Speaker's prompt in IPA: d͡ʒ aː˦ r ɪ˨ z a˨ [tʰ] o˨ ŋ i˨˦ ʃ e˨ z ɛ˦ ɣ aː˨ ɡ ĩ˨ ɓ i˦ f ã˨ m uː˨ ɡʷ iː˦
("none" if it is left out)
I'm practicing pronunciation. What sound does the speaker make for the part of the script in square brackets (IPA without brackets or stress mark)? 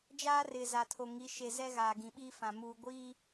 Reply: tʰ